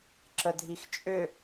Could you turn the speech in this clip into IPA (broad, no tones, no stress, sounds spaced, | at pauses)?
ǁ ə dʱ i x t͡ʃʼ ʏ